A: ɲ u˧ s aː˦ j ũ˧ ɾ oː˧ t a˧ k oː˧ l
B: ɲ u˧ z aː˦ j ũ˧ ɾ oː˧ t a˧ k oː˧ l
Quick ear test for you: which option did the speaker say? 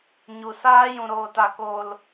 A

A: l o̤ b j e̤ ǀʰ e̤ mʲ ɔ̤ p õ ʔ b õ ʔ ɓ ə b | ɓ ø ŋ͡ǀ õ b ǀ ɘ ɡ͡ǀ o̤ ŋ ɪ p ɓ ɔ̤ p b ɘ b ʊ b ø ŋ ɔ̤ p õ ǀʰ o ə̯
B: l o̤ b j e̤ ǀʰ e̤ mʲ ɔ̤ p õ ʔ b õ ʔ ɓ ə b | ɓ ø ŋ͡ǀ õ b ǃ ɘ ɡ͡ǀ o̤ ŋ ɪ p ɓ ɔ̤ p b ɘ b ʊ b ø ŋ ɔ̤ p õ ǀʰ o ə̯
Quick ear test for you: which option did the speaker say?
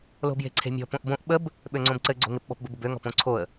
A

